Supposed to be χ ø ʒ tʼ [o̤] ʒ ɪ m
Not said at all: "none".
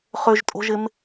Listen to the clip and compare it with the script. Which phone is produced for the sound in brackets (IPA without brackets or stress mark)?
o̤